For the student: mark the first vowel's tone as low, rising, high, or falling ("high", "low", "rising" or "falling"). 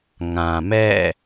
low